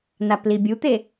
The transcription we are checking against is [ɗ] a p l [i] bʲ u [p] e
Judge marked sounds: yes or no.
no, yes, no

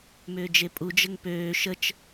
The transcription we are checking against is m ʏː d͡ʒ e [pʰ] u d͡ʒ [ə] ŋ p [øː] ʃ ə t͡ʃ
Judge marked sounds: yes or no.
no, yes, yes

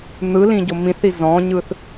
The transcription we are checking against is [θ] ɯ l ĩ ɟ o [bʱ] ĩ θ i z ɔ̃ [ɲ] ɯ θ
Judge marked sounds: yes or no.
no, no, yes

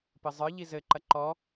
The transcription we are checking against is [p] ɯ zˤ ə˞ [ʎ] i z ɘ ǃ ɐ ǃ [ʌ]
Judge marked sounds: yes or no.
yes, yes, no

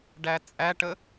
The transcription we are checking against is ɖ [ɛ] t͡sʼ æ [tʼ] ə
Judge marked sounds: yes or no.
no, no

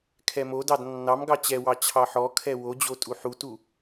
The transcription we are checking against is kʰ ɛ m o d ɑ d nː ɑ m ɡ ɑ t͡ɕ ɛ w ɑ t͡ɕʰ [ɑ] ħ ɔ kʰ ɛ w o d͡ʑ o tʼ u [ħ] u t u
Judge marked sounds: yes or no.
yes, yes

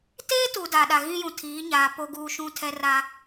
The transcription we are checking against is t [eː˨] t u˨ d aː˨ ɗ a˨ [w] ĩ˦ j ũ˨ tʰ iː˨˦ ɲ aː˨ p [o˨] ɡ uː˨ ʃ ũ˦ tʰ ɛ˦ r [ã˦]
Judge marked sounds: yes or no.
no, no, yes, no

